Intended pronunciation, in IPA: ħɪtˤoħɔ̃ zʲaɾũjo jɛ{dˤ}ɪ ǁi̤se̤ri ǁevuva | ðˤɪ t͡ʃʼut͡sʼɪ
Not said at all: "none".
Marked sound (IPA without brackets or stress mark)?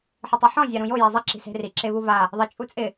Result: zˤ